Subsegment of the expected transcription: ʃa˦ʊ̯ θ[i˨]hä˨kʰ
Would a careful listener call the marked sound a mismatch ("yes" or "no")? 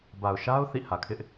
yes